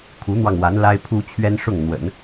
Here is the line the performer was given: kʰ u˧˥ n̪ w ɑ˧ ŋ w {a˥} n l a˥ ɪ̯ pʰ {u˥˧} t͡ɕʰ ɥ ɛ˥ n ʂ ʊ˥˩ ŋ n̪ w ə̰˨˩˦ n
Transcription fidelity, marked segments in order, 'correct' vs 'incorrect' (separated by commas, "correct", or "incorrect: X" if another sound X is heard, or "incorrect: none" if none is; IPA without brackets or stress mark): incorrect: a˧˥, incorrect: u˥